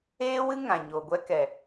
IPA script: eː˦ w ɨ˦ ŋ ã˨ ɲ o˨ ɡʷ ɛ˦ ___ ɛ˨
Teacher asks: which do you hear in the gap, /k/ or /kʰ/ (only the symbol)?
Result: k